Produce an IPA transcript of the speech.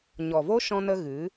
ɲɔ˨vo˦ ʃɔ̃˦nə˦ ɣɨ˨˦

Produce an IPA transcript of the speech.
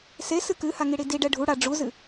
sesɨ kɨhaŋiɽi diɖɛ ɖʱu ɽa ɖ͡ʐuzɨ

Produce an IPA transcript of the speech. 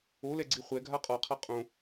olɛɡ͡ǀi χʷɛ ɡʱaqʼɔqʰa qʼõ

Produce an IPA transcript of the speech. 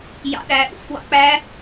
jɑ̰ɗæ ʔṵf wɑ̰k͡pæ

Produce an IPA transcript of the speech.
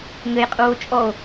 ŋɘjqʼuːo̯ t͡ʃʼɔo̯

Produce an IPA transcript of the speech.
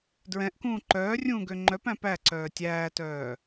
dɹɛ̃ʔkũː ǃœːrʲũːɡø ŋ͡ǃœpæ̃ pæǀœː tʲæːtœː

